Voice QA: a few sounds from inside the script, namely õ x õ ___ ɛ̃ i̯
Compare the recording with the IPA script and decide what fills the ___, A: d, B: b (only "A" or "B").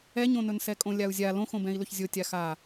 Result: B